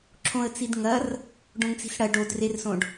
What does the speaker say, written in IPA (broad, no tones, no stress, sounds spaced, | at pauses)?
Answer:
ǁʰ õ ə̯ t͡s i d ŋ ɐ r | ɖ õ ŋ t͡s i̤ s ɽ ɐ ɖ o d r e r s õ ɖ